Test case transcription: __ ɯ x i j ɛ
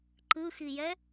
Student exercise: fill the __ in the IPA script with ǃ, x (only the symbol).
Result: ǃ